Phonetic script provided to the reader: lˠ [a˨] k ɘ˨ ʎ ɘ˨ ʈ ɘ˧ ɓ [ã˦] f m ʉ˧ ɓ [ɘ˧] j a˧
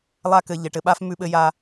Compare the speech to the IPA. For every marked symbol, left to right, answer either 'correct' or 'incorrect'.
incorrect: a˧, incorrect: a˦, correct

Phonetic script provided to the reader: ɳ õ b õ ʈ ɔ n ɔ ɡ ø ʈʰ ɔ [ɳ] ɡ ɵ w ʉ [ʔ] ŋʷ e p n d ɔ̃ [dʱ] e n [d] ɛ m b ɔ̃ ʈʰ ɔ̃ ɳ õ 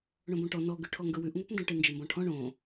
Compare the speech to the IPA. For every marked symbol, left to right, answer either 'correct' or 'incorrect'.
incorrect: ŋ, correct, incorrect: ʈ, incorrect: d͡ʒ

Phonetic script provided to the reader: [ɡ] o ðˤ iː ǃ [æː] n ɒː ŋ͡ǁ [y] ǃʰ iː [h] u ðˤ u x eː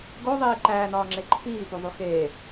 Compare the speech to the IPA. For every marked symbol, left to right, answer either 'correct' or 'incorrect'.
correct, correct, incorrect: e, incorrect: p

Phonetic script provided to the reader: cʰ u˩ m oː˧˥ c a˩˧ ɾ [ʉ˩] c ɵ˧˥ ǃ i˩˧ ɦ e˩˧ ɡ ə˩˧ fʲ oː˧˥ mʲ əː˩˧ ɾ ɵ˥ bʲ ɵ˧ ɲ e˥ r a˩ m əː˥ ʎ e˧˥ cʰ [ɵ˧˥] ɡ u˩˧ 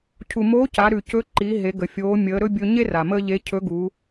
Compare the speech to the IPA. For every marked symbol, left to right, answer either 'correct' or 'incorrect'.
correct, correct

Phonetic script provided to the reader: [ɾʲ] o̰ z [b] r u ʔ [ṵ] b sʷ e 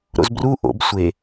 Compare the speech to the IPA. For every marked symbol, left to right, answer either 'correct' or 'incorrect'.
incorrect: ɾ, correct, incorrect: o̰

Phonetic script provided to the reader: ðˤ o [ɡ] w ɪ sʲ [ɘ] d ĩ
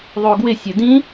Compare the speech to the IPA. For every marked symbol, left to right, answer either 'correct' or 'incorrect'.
correct, correct

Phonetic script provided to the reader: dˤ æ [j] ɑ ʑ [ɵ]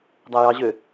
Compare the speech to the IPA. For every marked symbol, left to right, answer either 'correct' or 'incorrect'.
correct, incorrect: ø

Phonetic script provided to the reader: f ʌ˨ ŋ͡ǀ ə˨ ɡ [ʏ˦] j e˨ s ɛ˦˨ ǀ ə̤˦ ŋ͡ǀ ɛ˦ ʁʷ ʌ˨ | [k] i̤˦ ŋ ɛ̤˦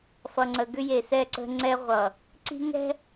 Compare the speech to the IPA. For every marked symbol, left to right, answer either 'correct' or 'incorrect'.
correct, incorrect: ǀ

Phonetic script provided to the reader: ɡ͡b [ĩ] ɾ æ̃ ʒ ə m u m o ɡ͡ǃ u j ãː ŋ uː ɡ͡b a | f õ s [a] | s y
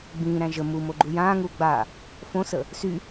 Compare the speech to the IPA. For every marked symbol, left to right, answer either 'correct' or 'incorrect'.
incorrect: ĩː, incorrect: ə

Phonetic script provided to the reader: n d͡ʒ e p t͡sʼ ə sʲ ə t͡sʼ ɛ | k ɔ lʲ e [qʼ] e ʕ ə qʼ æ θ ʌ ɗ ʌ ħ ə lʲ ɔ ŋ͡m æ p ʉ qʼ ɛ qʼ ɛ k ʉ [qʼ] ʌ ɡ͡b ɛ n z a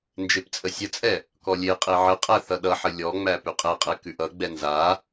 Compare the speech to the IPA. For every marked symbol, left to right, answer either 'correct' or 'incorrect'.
correct, incorrect: ʔ

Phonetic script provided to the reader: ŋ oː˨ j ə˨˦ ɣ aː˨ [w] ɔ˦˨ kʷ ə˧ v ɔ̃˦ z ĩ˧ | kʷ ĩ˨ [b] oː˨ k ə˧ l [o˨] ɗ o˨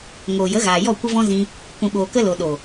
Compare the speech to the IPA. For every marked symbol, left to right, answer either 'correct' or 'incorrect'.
incorrect: j, incorrect: ɓ, correct

